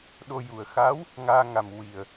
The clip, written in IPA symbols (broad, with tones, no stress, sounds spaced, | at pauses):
ɗ o˧ j u˨˩ ə̯ x a˧˥ w | ŋ aː˧ ŋ a˨˩ m w i˨˩ ə̯